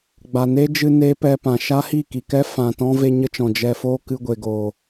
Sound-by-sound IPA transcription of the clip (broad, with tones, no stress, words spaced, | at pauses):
ɡ͡ba˨ne˦d͡ʒɨ˧ ne˦pɛ˧pã˨ ʃa˦hi˦˨ki˨kɛ˦ fã˨tɔ̃˦ ve˧ ɲə˦t͡ʃɔ̃˨ d͡ʒɛ˨foː˧ kɨ˧ɡʷe˨ɡo˨